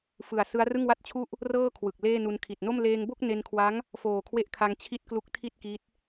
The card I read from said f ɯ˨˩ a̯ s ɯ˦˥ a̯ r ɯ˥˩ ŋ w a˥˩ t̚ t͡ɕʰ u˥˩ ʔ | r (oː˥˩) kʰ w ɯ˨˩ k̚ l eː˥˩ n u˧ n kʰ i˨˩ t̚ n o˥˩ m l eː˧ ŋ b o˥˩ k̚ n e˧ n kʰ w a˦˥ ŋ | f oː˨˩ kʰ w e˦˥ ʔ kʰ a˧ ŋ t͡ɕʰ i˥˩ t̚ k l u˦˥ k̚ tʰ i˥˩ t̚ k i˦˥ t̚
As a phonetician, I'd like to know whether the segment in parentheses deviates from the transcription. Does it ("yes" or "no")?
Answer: yes